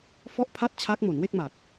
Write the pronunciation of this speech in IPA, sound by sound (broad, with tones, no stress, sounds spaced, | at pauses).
f ɔ˥˩ ʔ pʰ a˥˩ t̚ t͡ɕʰ a˦˥ k̚ m o˩˦ n w e˥˩ k̚ m a˨˩ t̚